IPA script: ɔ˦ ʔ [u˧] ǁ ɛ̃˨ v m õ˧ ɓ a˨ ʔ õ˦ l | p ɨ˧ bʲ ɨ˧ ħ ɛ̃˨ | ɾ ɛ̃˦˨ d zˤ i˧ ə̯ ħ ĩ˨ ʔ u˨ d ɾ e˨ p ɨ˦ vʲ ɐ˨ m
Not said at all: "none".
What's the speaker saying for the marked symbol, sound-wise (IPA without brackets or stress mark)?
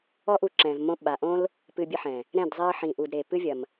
u˧